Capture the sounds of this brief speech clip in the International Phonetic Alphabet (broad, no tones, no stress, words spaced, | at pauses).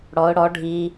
ɽɔʊ̯ ɽɔ ɖʱi